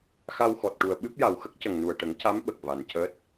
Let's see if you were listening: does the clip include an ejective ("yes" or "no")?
no